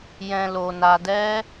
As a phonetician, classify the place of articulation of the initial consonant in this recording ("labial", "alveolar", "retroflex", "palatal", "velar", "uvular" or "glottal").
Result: palatal